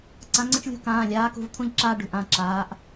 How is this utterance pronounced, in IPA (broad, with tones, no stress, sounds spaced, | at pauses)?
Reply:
ǀ ã˨˦ ŋ͡ǀ ə̃˦ t͡ʃ lʲ ṳ˦ k ãː˩˧˩ lʲ aː˨˦ k ṳ˩˧˩ v t̪ʰ ũ˦ ʎ ǁ aː˦ ɖ ṳ˩˧˩ ʔ ã˩˧˩ ǁ aː˨˦ ʔ